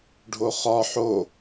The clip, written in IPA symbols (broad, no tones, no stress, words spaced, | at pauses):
ɖʱoχɒ ħo